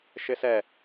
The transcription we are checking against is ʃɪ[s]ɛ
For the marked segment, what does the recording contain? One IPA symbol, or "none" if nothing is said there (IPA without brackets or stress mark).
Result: s